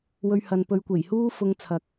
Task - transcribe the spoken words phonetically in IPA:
wɵ˧ɥhɐ˨n pɵ˨˧ɥkʷe˨˩jhuː˥ fʊ˧ŋ t͡sʰɐ˨k̚

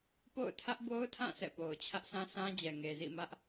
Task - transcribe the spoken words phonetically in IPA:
po̰˦˨ʊ̯ tʰä˦ʔbo˦ʊ̯tʰã˦˨ sʰɛ̰˦˨po˨ʊ̯ t͡ɕʰä˦ʔsʰã˦sã˦ d͡ʑɛ˨ŋe˨zḭ˦˨ mä˦ʔ

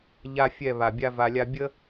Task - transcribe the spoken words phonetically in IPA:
ʎa˦fʲɛ˦˨ βa˨bʲa˦ va˧lʲa˦ bʲə˦

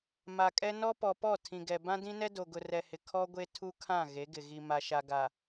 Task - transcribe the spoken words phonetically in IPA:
ma˨kʼɛ˦nɔ˦ pɔ˨pɔ˦˨ tʰĩ˨ɡɛ˨ bã˦dĩ˦nɛ˦ do˨ɡʊ˨rɛ˨hɪ˨ kʰɔ˦ɡʷe˦ tʰu˦kʰã˦˨ ɣe˨˦ɡɪ˨ ɣi˨ ma˨ʃa˨ ɡa˨

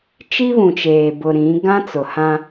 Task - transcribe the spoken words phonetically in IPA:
t͡ʃi˦βũ˨t͡ʃeː˨bʊ˨ ɾĩ˨˦ ɡã˦t͡sʊ˨hã˦

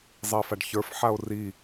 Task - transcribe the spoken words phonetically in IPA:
zˤɛfaɖçə˞fħao̯ ri

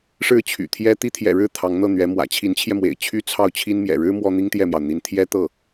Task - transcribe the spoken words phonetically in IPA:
ʂɻ̩˥˩t͡ɕʰy̰˨˩t̪ʰjɛ˥ t̪i˥t̪ʰjɛ̰˨˩ɻɻ̩˥˩ t̪ʰɑ˧˥ŋn̪ɤ˥˩n̪ɥɛ˧˥mwä̰˨˩ t͡ɕʰi˧˥nt͡ɕʰjɛ˧ mwḛ˨˩ɪ̯t͡ɕʰy˥ t͡sʰɑ˥˩ʊ̯t͡ɕʰi˥n mjɛ̰˨˩ɻɻ̩˥ mwɔ˥n̪i˥ŋt̪jɛ˥˩mjɑ˩ʊ̯ n̪i˧˥nt̪ʰjɛ˥t̪ɤ˥˩

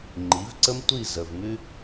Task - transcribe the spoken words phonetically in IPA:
ŋ͡ǃi˨˦vǀə˦m tʷi˦˨ zə˨v mʉ˦

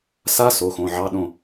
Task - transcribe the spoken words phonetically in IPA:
sa˦˥ so˩˧˩xõ˩˧˩ʕɑ˧˥˧ɗõ˥˨

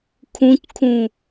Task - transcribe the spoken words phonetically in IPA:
kʰũckʰũ

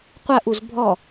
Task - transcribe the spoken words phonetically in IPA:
qʷɐ ʔuzbʱɔ

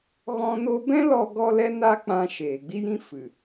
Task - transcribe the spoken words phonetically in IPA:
ɣɔ̃˦no˦ bɛ̃˦lɔ˧ɡɔ˧ lɛ˦na˦k͡pã˧ ʃeː˨ɡ͡bi˦jĩ˦ fɨ˨

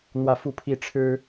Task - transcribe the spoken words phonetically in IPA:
n̪wä˥˧fu˥˧pʰi˥˩ ʈ͡ʂʰɻ̩˥

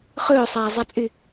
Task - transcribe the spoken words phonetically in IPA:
χɵːsˤæːzˤæt͡sʼy

